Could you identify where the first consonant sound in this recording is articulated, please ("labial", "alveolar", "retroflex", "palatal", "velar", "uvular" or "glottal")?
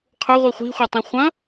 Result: uvular